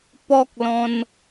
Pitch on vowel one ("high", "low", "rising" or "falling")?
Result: high